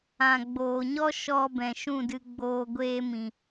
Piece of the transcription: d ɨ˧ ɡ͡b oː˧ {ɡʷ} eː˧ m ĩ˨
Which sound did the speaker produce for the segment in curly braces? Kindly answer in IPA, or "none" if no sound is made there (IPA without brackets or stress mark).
ɡʷ